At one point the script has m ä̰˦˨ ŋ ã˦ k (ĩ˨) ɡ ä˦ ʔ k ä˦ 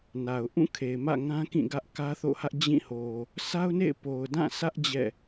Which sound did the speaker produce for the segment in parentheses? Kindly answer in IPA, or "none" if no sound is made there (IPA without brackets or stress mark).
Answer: ĩ˦˨